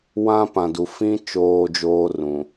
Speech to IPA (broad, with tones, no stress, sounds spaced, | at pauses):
w ã˦ p ã˨ d u˨ f ĩ˦ t͡ʃ oː˦ d͡ʒ oː˦ r ũ˨